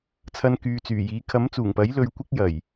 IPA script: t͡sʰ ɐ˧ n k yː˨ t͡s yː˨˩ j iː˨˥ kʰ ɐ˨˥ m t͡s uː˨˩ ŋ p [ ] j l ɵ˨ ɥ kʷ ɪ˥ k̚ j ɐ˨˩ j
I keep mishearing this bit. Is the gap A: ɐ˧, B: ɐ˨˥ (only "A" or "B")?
B